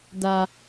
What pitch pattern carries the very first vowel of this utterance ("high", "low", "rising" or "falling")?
low